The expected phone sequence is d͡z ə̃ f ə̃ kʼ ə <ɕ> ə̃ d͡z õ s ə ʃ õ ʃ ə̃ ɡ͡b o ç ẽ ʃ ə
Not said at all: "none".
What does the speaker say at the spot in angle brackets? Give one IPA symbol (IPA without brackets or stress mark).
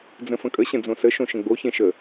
ɕ